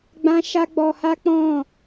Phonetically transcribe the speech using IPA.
ɡ͡b ã˦ ʃ a˦ ɡ͡b ɔ˧ h a˦ k͡p ɔ̃˦˨

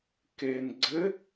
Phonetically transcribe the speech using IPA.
k eː n ɡ͡ǀ ɘ

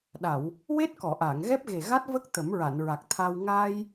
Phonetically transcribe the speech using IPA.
ɗ a˨˩˨ w | w e˦˥ t̚ k ɔ˨˩˨ ʔ aː˨˩˨ ŋ ɣ ɛ˦˥ p̚ ɣ e˨˩ ɣ a˦˥ t̚ v ə˦˥ k̚ t̪ ə˨˩˦ m ɹ a˨˩˨ n ɹ a˨˩ k̚ t̪ʰ a˧ w ŋ aː˧ j

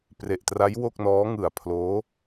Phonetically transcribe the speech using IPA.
p r e˨˩ ʔ t r a˦˥ j w o˥˩ k̚ n ɔː˦˥ ŋ ɯ˨˩ a̯ pʰ l oː˦˥

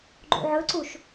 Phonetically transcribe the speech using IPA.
ɡ͡ǃ ṵ ʕ ɵ ǀ u ʃ

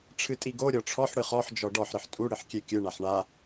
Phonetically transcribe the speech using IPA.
ʈ͡ʂʰ ɨ tʼ i ɡ o ɾʲ ɔ ʈ͡ʂʰ ɔ ħ ɽ ɨ χ ɔ ħ d͡ʒ ɔ ɖ ɔ ħ ɾ ɨ ħ tʼ u ɽ ɨ ħ kʲ e kʲ ɨ ɳ a ħ ɳ a

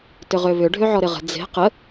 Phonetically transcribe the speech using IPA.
t ʏ ʁ ø β ʏ ɖʱ ø ʕ ɔ ɾ ɪ ʁ ə̤ d͡z e̤ q ə

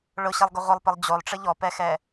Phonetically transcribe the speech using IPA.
ɭ ʊ ɕ e lˠ ɡ ʊ ʁʷ ɪ lˠ p ɪ lˠ d͡ʑ o lˠ ʈ͡ʂ ɪ ʎ ɔ p ɛ x ɛ

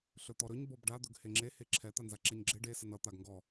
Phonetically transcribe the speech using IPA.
ɬ ɵ t̪ ɔ ɾ ɵ ɲ b ɔ b ɖ a d̪ ɵ ɡ h e ŋ͡ǁ e h e ǁʰ ɛ t̪ a n z a ǁ ɛ ɲ ɡ͡ǁ e ɖ e s ə n ʌ t̪ a ɡ ŋ ɡ ɔ

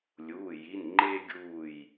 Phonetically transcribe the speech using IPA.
lʲ uː˩˧˩ j i˩˧˩ n ŋ͡ǃ eː˦ ɡʲ uː˧˩ j

